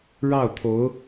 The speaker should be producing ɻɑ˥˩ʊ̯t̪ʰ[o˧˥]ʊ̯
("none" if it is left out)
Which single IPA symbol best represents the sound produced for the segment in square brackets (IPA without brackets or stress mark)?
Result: o˧˥